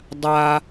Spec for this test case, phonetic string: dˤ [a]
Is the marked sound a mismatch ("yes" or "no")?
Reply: no